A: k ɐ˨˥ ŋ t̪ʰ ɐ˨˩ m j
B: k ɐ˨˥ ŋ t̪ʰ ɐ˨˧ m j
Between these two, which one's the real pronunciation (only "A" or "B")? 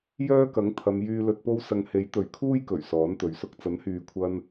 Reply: B